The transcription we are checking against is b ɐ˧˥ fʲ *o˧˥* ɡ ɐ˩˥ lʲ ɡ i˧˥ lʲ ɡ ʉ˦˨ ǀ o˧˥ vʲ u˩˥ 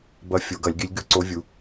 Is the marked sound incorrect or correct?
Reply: incorrect